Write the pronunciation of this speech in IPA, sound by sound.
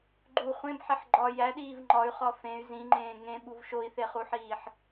ɡ͡ǃ u χʷ ẽ b ħ e ħ ɡ͡ǃ ɒ j æ ɗ iː v ŋ͡ǃ ɒ y̯ χ ɒ f ẽ y̯ z ĩ ŋ͡ǃ ẽː ŋ ẽ ɓ u v ʃ o i̯ θ e χ u ħ iː ħ

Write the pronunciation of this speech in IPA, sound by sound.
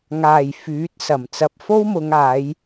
ŋ aː˨˩ j f yː˨˥ t̚ s ɐ˨˩ m t͡s ɐ˨ p̚ f o˥ w m ʊ˨˧ ŋ aː˨˧ j

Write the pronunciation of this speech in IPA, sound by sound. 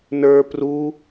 n ə˞ p r u

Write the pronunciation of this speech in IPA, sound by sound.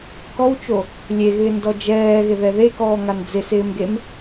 k ɔ w t͡ʃ o | lʲ e ɣ ɪː n d ɔ d͡ʒ ɛː ɣ ɪ ð ɛ ð e k ɔː ŋ a n d͡z ɪ s ɪː m ɡ e m

